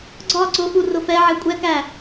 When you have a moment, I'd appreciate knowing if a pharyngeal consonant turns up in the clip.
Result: yes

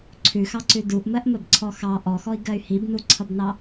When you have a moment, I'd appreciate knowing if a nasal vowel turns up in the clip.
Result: no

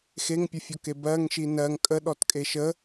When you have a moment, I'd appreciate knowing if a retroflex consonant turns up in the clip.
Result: no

